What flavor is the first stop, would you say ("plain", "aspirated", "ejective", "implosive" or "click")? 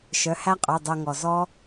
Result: ejective